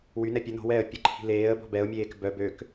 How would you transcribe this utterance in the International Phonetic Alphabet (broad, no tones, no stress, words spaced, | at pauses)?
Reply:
wynɛ pʲə no̤wɛːə̯ pʲəǃʰi̤ leːə̯ bɔ̤bɛʊ̯mʲeːk bœ bøk